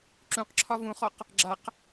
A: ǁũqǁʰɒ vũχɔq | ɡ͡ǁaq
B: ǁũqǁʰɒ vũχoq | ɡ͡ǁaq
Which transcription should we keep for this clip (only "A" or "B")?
A